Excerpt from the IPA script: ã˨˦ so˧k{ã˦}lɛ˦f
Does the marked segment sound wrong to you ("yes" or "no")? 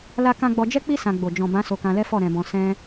yes